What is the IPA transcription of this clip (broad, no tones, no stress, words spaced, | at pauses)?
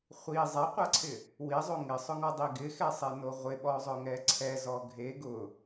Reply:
χʷi zˤaqʷaǀʰɪ | wizˤo ŋɪsˤʊŋɔdˤi ɡɪxɛsˤeno ʁʷɪɓɔzˤʊŋɛ ǀʰɛzɔ ɡʱe ɡʊ